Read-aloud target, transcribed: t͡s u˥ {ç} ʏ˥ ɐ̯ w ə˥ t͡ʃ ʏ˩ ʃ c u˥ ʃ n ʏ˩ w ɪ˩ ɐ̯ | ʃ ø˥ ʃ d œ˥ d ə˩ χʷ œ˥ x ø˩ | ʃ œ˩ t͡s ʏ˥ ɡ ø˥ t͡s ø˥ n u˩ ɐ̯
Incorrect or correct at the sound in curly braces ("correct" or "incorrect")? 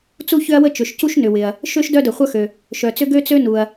correct